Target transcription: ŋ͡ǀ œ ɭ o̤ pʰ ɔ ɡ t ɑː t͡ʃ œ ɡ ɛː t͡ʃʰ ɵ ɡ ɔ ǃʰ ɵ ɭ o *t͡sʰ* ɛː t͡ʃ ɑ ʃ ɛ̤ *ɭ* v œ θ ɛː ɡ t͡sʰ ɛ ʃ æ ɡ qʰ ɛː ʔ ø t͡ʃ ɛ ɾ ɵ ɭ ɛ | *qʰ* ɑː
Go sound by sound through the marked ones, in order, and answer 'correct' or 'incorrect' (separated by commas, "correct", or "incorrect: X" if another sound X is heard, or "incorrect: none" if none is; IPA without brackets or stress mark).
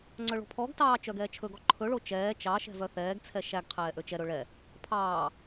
incorrect: t͡ʃ, incorrect: none, incorrect: pʰ